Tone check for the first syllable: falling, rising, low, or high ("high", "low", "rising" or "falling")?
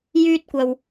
high